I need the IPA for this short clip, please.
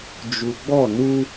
d͡ʒ u˨ ɡ͡b ɔ˦˨ n u˦

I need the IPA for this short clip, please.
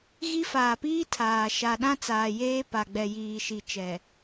ɣ i˦ f aː˨ p iː˦ tʰ aː˨ ʃ a˨ ɗ ã˦ t͡s aː˨ j eː˦ p a˨ ɡ͡b ɛ˨ j iː˨ ʃ i˨ t͡ʃ ɛ˨

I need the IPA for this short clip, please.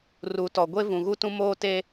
r u˨ t ɔ˨ ɡʷ e˦ v ũ˨ ɣ u˦ t ũ˦ m oː˦ t e˦

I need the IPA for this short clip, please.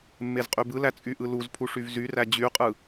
mː e z qʼ y b ɯ l æ t͡sʼ y ʔ ɯ l u z pʰ u ʂ y v z y r æ d͡ʑ y qʼ ɯ

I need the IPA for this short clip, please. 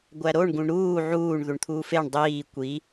ɡʷ æ ɾ o ɳ ɡ ũ ɳ ɾ uː ʕ uː ɳ ð u ɳ t̪ʰ uː f e ɳ dˤ iː kʷ i

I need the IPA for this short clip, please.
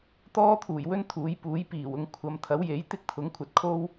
t̪ ɔː˥ t̪ʰ uː˨˩ j w ɵ˥ n t̪ʰ uː˨˧ j p uː˨˥ j p iː˨˩ w ʊ˧ ŋ kʷʰ ɐ˨˧ m t̪ʰ ɐ˨˥ w j e˨˥ j t̪ ɪ˥ k̚ t̪ʰ ʊ˨˥ ŋ kʷʰ ɐ˨ t̚ kʰ o˥ w

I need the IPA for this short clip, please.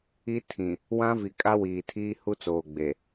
i˦ tʰ ĩ˨ | w ã˦ v i˨ kʼ a˦ w iː˨ tʰ iː˦ h u˦ t͡s oː˨ ɡ͡b e˨

